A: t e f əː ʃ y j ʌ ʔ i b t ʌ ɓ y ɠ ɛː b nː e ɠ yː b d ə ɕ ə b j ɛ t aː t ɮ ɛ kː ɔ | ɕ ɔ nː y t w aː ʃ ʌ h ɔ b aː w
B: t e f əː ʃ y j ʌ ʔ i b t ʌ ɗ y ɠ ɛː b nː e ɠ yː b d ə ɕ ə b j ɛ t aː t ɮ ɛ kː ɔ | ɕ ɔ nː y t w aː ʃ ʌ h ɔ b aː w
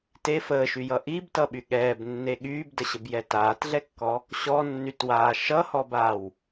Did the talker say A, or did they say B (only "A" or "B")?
A